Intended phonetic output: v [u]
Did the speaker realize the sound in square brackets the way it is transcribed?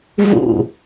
no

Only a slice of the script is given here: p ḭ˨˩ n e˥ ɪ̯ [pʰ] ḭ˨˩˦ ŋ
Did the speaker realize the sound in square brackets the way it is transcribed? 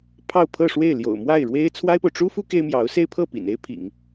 yes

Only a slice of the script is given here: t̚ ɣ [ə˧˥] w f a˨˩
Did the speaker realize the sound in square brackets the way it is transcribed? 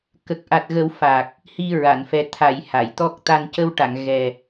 no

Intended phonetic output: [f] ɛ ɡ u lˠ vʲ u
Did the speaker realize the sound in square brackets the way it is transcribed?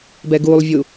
no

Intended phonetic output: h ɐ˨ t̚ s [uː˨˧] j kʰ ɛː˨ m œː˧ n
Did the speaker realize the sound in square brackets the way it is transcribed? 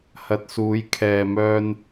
yes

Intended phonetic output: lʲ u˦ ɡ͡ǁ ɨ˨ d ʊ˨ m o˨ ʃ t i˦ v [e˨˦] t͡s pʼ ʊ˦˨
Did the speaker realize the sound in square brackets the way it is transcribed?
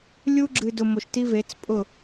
yes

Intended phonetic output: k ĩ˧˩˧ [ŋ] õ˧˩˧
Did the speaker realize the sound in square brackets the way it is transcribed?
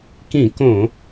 no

